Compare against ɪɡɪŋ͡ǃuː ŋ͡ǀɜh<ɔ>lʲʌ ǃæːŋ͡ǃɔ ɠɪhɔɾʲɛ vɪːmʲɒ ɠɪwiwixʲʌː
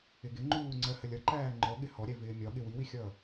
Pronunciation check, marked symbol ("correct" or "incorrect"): incorrect